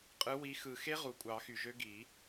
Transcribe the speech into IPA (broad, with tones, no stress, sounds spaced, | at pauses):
qʼ ɯ˨˦ w i˨˦ x ɯ˨˩ x e˦˥ ʁ u˨˩ kʷʼ ɑ˨˩˦ x y˨˩ ʒ ø˦˥ ɡ i˨˩˦